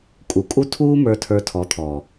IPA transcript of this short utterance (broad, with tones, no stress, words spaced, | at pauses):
kʼu˨ kʼu˧ tʰuː˦mə˞˧ tʰə˞˧tʰɔ˨˦t̪ʰɔː˨